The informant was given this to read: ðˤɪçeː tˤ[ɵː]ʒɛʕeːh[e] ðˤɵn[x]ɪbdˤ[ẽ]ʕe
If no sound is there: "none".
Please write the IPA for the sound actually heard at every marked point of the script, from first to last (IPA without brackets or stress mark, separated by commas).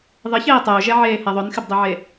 ɵː, ɛ, x, e